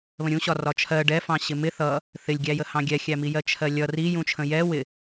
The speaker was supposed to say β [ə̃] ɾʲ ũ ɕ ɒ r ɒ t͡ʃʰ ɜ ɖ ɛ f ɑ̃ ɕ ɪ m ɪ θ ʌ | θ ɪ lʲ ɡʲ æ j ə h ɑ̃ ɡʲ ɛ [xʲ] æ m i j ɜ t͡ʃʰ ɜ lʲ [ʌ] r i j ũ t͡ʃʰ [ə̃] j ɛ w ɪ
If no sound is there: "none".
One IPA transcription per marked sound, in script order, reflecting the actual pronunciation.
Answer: ə̃, xʲ, ʌ, ə̃

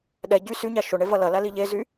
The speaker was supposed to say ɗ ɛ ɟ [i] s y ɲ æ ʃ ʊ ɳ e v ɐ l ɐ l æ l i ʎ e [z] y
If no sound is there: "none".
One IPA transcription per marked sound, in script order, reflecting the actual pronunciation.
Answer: y, z

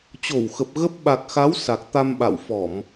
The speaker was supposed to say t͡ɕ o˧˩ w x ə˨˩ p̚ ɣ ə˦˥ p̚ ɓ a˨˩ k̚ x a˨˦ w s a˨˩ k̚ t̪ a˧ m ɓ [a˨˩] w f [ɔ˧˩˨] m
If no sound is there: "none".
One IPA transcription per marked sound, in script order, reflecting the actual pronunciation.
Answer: a̰˧˨, ɔ˧˩˨

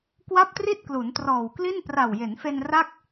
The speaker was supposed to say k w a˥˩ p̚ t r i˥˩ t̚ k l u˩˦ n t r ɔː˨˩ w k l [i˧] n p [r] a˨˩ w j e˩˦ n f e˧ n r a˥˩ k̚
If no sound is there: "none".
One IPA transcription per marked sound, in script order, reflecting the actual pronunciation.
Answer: i˥˩, r

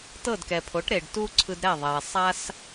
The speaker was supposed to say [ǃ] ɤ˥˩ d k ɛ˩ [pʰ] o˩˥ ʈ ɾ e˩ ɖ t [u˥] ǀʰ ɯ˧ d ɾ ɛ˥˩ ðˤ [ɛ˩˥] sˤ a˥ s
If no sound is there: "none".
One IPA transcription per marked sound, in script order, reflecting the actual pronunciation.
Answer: t, pʰ, u˥, ɛ˩

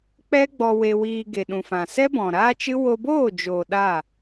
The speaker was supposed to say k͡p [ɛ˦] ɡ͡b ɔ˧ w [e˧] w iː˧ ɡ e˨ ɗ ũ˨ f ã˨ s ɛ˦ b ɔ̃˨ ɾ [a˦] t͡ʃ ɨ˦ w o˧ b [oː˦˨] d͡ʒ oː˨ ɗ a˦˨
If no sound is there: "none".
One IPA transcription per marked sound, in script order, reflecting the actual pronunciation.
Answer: ɛ˦, e˧, aː˦, oː˦˨

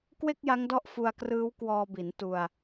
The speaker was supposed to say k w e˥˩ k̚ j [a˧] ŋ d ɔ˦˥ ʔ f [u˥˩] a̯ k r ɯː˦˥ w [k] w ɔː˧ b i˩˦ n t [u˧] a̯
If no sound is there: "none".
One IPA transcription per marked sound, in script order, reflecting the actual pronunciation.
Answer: a˦˥, u˧, k, u˧

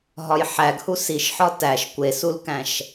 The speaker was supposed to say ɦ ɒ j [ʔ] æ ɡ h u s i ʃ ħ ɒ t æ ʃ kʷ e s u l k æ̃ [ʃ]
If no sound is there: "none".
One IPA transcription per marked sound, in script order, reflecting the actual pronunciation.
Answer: ħ, ʃ

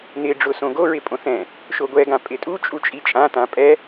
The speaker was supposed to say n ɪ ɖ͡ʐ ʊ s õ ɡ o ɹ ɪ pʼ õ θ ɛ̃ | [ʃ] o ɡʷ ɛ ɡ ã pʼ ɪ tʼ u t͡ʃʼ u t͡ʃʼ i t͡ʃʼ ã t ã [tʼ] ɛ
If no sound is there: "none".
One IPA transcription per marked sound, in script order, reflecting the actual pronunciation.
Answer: ʃ, pʼ

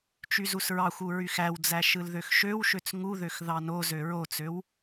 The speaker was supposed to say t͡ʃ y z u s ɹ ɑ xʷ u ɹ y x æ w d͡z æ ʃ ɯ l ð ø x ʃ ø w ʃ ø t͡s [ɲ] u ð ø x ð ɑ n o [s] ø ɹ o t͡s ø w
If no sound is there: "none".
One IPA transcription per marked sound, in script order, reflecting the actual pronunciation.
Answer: ŋ, z

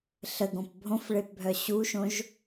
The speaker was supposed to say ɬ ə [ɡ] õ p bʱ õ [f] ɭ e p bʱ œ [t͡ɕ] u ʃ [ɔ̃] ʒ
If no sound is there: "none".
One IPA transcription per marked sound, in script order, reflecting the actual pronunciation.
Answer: ɡ, f, ɕ, õ

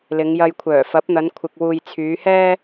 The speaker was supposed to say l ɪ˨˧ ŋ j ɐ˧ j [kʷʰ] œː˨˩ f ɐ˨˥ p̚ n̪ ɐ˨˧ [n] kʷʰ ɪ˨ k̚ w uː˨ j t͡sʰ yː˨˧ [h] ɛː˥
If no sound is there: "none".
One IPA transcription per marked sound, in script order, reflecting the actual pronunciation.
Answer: kʷʰ, n, h

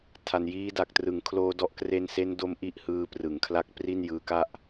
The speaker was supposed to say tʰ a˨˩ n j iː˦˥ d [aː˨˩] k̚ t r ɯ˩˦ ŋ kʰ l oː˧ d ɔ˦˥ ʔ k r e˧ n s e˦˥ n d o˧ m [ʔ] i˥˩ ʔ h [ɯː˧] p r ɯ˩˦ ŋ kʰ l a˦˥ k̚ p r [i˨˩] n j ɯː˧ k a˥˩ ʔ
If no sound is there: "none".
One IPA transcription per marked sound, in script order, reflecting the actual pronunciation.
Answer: a˨˩, ʔ, ɯː˧, i˥˩

